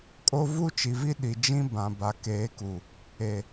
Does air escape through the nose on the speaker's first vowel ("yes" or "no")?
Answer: no